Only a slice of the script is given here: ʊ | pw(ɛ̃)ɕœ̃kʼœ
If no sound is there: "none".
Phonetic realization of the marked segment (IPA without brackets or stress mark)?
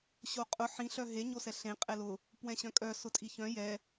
ɛ̃